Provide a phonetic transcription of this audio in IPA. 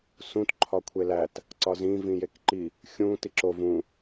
s ũ t ǃʰ ɒ kʷʰ e l æ t | ǀ ɒ z ĩ v ĩ j e k ǃ i | xʲ ũ t i ǁ o v ũ

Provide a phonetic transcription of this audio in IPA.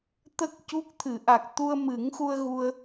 t̪ ə˦˥ k̚ c u˦˥ k̚ t̪ʰ ɨ˨˩˦ ʔ a˨˩ k̚ t̪ u˧ ə̯ m ɨ˨˩˦ ŋ x u˧ ə̯ ɣ u˧ ə̯

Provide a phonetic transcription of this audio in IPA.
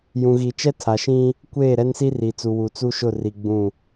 j ũ˨ ɣ i˨ t͡ʃ ɛ˦ tʰ a˨ ʃ ĩ˦ | kʷ eː˦˨ ɾ ɛ˦ n s i˦ r i˨ t͡s u˨ w u˨ t͡s u˦ ʃ ʊ˦˨ r i˨ ɡ͡b ũ˦˨

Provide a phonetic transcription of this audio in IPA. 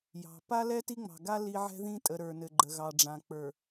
j ɑ̤˨ p a˦ l ɛ˦ t i˦ ŋ͡m ɑ̤˨ ɡ a˦ l i˦ ʕ ɛ̤˦ ð ĩ˦ tʼ ə˨ ɾ ə˞˨ n ɘ˨ ɡ͡ǃ ə˨ ɣ ɑ˨ ɖ͡ʐ ã˨ k͡p ə˞˨

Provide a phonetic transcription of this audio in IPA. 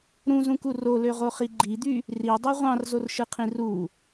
ɾ ũ z ũ k u r o l ø ʁ o χ i ɡ͡ǃ i d̪ y | r i dˤ y ʁʷ ɑ̃ r z o r ʃ ɯ qʰ ĩ r u

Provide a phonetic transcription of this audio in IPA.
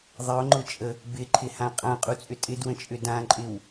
ðˤ ɪ ʊ̯ ŋ͡ǃ ʊ t͡ʃʼ ə | b ɪ ǃʰ ɪ h ã qʼ ã qʼ u t͡sʼ ʏ tʼ ɪ d w ə̃ t͡ʃʼ ʏ d ã ǃʼ ɪ w

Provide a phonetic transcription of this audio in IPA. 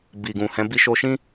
b i˨ ɡ ũ˨ h ɛ̃˨˦ b i˦ ʃ o˦ ʃ ĩ˦

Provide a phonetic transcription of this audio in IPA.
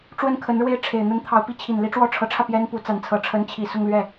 ʈ͡ʂ w ə˥˩ n kʰ ə˧˥ n ɻ w e˥˩ ɪ̯ ʈ͡ʂʰ e˨˩ ɪ̯ n̪ ə˥ n t̪ʰ ɑ˧˥ ʊ̯ p i˧˥ t͡ɕʰ i˨˩ n l i˥ ʈ͡ʂ w ɔ˥ ʈ͡ʂʰ ɤ˧˥ ʈ͡ʂʰ ä˧ p j ɛ˥ n p u˧˥ t͡s a˧˥ n t͡sʰ ɤ˧˥ ʈ͡ʂʰ ə˧˥ n t͡ɕʰ i˨˩ s ʊ˥˧ ŋ l ɥ ɛ˥˩

